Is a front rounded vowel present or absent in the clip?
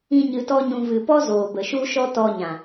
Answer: absent